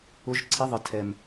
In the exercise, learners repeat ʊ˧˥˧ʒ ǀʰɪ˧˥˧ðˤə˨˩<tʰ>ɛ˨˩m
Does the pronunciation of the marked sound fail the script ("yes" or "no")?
no